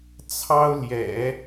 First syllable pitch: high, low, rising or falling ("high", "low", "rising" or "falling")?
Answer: high